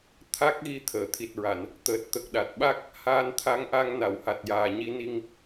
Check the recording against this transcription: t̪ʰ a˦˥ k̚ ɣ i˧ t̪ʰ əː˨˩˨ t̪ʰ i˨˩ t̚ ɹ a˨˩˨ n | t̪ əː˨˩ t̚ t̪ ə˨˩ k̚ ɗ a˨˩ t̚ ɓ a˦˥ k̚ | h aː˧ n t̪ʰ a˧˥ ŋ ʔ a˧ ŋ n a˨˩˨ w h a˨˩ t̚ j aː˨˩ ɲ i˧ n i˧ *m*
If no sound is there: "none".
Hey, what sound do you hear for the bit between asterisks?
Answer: ŋ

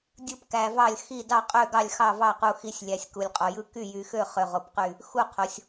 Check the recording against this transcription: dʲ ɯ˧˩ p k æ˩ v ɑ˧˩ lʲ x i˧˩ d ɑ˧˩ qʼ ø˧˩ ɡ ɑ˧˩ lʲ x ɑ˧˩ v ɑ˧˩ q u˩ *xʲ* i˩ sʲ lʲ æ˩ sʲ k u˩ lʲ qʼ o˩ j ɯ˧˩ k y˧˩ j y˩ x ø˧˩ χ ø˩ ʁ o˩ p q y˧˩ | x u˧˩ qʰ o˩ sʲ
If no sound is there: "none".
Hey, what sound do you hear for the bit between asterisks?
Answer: x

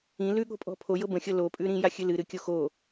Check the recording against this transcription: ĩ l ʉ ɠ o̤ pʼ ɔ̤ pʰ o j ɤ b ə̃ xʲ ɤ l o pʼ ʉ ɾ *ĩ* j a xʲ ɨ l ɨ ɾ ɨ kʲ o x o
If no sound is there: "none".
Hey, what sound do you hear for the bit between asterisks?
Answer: ĩ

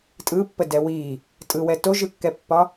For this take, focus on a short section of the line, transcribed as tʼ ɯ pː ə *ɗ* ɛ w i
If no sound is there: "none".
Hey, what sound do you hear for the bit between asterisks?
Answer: d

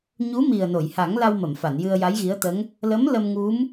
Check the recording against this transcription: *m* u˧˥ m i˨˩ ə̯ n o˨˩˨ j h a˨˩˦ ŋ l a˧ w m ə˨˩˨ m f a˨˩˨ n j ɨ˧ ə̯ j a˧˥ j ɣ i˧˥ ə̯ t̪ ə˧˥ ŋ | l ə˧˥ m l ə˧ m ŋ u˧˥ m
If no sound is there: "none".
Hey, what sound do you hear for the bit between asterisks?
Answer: ɲ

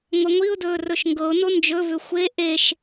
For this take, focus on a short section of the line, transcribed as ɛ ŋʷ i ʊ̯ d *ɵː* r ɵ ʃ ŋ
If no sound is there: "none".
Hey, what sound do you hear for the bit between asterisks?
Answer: ɵː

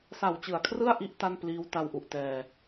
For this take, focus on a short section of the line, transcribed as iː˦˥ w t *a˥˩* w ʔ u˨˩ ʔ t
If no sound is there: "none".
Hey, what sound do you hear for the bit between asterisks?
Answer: a˧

